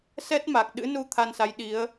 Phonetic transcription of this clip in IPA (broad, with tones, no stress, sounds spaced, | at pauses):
s ɛ˦˥ t̚ m a˨˩ k̚ ɗ ɨ̰˧˥ n u˧ t̪ʰ a˧ n s a˨˦ j ɗ i˨˦ ə̯